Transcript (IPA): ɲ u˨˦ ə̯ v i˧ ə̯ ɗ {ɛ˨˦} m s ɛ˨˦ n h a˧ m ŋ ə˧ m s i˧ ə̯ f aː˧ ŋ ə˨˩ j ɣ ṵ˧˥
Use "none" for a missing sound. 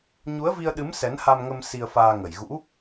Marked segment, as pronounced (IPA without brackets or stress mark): ɨ˨˦